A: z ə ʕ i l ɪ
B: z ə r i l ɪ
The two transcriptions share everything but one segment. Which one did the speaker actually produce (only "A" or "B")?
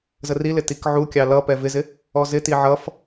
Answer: B